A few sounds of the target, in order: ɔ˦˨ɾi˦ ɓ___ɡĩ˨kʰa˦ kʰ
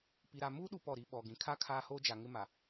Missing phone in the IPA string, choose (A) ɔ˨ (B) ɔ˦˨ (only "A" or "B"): A